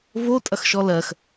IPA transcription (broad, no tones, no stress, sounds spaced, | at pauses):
v o tʼ ɐ x ʃ ɔ l ɜ x